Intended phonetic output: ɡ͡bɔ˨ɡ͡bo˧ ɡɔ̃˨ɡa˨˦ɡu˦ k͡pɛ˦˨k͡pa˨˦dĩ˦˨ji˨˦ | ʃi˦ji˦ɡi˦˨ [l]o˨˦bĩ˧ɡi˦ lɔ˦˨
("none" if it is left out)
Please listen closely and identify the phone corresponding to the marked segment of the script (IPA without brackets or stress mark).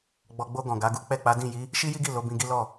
l